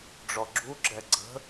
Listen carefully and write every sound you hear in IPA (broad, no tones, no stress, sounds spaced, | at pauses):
ɖ͡ʐ ɔ ɡ͡ǁ u ɡ͡ǁ ɛ ɡ͡ǀ ə̤